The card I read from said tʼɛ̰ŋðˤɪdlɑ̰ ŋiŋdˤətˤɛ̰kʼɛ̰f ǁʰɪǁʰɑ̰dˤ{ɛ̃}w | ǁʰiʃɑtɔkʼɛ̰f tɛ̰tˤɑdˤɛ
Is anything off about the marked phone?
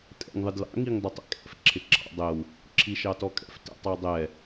yes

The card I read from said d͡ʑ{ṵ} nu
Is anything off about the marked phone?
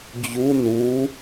yes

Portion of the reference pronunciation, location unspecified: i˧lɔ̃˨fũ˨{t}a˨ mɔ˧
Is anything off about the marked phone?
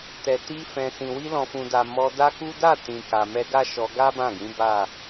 yes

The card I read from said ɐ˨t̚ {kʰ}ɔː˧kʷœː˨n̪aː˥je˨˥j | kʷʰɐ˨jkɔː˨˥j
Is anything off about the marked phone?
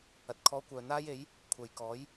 no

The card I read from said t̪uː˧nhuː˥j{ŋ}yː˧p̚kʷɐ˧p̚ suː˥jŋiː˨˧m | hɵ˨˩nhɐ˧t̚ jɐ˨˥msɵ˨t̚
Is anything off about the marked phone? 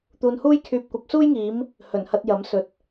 yes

